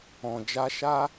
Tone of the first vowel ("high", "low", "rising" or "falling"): low